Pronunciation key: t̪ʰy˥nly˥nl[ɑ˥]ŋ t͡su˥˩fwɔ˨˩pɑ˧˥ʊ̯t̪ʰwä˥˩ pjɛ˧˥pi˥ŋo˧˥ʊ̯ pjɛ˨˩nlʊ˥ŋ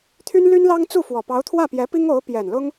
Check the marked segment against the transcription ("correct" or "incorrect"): correct